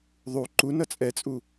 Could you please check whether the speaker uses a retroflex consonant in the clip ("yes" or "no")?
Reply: no